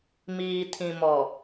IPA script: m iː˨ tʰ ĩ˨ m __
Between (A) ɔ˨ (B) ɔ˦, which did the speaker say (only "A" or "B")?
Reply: A